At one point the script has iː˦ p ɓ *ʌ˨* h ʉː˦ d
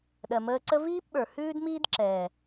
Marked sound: incorrect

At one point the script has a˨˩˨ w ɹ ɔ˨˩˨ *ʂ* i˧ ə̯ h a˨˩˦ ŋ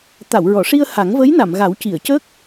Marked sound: correct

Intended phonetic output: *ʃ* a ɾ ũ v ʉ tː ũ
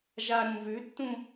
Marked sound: incorrect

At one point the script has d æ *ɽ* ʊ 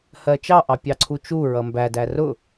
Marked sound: incorrect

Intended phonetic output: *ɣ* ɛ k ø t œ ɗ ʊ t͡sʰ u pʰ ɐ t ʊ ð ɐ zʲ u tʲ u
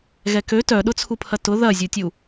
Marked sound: correct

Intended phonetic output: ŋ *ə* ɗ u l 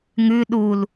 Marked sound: incorrect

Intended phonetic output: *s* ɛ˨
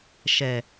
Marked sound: incorrect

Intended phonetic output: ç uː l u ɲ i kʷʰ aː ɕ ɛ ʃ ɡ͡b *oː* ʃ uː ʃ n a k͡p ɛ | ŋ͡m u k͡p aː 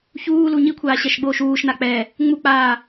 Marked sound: correct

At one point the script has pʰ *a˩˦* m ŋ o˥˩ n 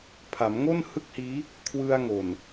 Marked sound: correct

